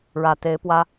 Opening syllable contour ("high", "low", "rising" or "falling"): low